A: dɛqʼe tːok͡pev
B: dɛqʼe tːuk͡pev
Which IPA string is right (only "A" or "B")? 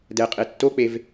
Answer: A